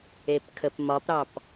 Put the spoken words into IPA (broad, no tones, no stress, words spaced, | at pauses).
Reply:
epkʰəpmɒpɾɑp